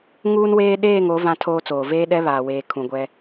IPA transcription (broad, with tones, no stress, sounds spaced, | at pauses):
ŋ uː˦ n w eː˦ ɗ eː˦˨ ŋ o˨˦ v ã˦ tʰ oː˦ t͡s oː˨ v eː˦ ɗ ɛ˦ β aː˨ w eː˨ kʰ ũ˨ ɡʷ ɛ˦